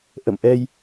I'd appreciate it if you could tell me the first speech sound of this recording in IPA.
ʔ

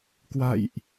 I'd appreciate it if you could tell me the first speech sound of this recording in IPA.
k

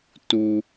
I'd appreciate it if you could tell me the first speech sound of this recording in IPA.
t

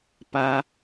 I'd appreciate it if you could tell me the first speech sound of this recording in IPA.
p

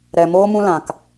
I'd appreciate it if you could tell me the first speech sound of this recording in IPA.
ɾ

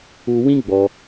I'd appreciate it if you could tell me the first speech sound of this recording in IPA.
u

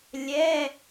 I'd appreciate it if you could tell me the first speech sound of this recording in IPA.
lʲ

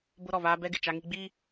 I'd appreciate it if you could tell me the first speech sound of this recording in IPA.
b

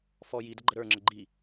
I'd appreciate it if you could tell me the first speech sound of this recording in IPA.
f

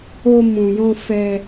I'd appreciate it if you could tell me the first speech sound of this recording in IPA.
o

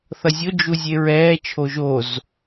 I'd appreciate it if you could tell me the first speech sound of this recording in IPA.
θ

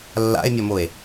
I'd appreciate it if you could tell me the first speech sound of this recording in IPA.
lː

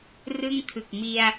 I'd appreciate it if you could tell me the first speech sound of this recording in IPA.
r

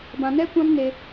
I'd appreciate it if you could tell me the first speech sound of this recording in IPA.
b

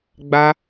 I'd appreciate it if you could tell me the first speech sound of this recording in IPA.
ɡ͡b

